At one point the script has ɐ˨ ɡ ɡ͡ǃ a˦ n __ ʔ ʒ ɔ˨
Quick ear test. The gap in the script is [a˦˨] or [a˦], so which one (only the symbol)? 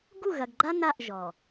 a˦˨